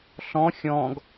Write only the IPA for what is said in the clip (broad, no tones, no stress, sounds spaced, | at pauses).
ɬ ɔ̃ xʲ ɔ̃ ɡ